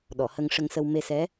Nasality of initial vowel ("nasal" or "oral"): oral